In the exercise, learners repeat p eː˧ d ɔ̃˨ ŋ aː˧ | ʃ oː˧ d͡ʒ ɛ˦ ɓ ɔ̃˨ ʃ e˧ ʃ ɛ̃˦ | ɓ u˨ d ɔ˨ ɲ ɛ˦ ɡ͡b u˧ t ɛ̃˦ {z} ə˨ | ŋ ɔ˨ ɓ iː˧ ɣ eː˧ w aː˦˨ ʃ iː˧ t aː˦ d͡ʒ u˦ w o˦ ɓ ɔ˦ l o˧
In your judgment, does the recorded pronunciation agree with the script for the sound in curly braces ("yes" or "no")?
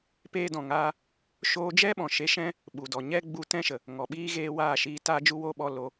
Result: no